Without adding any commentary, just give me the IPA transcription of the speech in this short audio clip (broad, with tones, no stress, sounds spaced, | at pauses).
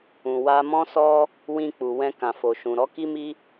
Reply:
ũ˨ w a˧ m ɔ̃˦ s ɔ˦ | w ĩ˧ k͡p u˨ w ɛ̃˧ k ã˨ f o˨ ʃ ũ˨ ɾ ɔ˨˦ k i˦ m i˦